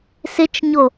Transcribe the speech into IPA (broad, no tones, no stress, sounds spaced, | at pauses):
s ɪ t͡ʃ ɲ o